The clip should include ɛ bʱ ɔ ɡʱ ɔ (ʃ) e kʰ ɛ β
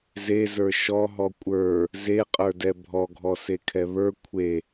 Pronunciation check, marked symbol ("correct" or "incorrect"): incorrect